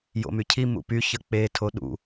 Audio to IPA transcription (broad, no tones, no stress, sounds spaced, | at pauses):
j o̰ m y cʰ i m ṵ p y ç ə k͡p e tʰ o ɗ ṵ